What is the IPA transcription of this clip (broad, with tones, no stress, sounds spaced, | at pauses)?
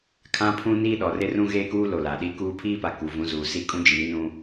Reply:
kʰ ã˦ pʰ ũ˦ n iː˦ ɗ ɔ˨ r ɪ˦ r ũ˦ ɣ eː˦ k uː˦ l o˨ l a˨ ɗ i˦ k uː˦ pʰ iː˦ p a˨ k u˨ v ũ˨˦ z uː˨ s i˦˨ kʼ ũ˦ d͡ʒ iː˨˦ n ũ˦